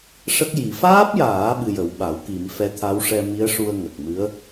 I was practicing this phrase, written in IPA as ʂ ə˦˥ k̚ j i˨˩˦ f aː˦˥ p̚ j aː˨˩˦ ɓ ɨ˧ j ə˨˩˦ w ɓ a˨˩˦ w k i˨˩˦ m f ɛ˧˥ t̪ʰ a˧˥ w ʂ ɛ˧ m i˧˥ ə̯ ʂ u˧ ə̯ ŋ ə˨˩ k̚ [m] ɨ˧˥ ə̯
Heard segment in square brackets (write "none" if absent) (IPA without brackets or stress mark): m